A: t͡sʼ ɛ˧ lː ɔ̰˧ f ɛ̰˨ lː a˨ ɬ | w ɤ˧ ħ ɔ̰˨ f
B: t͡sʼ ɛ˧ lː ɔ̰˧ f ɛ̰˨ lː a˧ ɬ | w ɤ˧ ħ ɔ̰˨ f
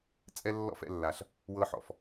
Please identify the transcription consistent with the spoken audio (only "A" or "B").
A